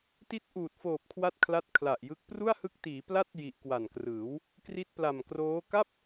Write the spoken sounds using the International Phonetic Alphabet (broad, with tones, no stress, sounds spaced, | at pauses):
t i˦˥ t̚ ʔ uː˨˩ t̚ f oː˨˩ p̚ kʰ w a˦˥ t̚ kʰ l a˦˥ t̚ kʰ l a˨˩ ʔ j ɯ˦˥ k̚ p r u˥˩ a̯ h ɯ˦˥ k̚ t iː˩˦ p l a˥˩ t̚ j i˨˩ ʔ k w a˨˩ n k r ɯː˩˦ w | k r i˦˥ t̚ p l a˨˩ m k r oː˦˥ k a˥˩ p̚